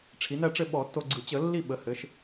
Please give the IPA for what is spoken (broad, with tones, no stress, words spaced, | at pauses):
ʈ͡ʂʰi˩˧næ˦˨ʈ͡ʂɘ˦˨ ɓɔ˧˩˧tːo˦˨ɡ͡ǀɯ˧˩˧ t͡ɕə˧˩˧lːi˦˨ ɓə˩˧ hɘ˩˧ʃ